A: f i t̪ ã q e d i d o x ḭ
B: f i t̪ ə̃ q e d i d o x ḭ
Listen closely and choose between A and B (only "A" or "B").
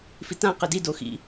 A